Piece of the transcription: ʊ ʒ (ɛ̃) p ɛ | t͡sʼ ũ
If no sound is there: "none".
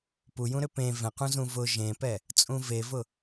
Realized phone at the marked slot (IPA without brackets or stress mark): ẽ